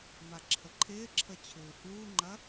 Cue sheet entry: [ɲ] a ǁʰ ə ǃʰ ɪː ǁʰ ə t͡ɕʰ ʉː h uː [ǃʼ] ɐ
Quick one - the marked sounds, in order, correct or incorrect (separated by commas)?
incorrect, incorrect